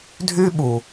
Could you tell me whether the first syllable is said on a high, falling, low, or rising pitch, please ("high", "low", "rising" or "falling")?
high